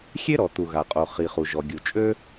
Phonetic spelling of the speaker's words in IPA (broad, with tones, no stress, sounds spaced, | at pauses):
xʲ e˥ ɾ ɔ˩ t̪ u˩ ɣ a˩ qʼ o˩ χ i˩ χ u˩ ʒ ɔ˩ ɡʲ u˩ t͡ʃʼ ø˥